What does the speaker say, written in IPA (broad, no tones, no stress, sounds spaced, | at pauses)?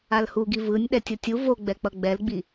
a l h u ɡ i v ɯ nʲ ɗ ɛ tʲ o tʲ u v o ɡ͡b ɛ k͡p ʌ ɡ͡b ɛ l ɡ͡b i